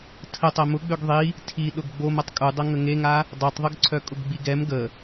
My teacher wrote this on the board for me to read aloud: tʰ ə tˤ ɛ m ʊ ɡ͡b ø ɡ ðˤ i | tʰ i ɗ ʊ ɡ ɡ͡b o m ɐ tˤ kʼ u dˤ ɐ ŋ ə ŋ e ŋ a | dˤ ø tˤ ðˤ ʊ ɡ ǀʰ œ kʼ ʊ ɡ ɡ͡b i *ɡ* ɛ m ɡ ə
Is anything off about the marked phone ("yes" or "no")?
no